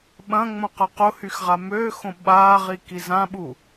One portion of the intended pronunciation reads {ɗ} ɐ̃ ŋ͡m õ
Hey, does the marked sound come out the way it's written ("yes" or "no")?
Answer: no